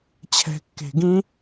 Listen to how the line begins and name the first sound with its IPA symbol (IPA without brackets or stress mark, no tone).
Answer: t͡ɕʰ